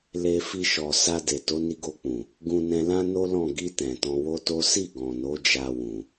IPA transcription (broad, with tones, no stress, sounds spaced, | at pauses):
l e˨ f i˧ ʃ ɔ˨ s a˧ d e˨ t o˨˦ n i˧ ɡ o˧ k͡p ũ˨ | ɡ ũ˨ n ɛ̃˨ l ã˧ n o˦ l ɔ̃˦˨ ɡ i˧ t ɛ̃˨ t ɔ̃˧ w o˦ t o˦ s i˦˨ ɡ ɔ̃˨ n o˨˦ d͡ʒ a˧ w ũ˨